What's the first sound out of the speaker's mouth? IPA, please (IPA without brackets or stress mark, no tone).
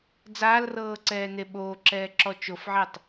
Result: d͡z